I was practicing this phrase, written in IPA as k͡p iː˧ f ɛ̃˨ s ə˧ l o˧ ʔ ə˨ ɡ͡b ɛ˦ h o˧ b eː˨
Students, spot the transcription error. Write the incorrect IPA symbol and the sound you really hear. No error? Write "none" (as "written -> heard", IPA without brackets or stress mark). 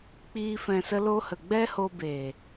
ʔ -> h